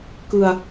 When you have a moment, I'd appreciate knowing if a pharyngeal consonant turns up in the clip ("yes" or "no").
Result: no